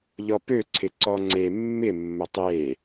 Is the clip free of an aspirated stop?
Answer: no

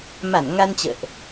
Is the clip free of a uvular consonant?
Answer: yes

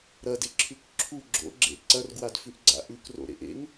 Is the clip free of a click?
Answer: no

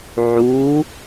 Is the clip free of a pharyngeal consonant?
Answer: no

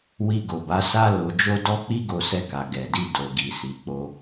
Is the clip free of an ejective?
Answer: yes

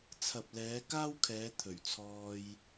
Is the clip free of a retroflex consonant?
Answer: yes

